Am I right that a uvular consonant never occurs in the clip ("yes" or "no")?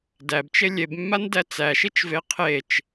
no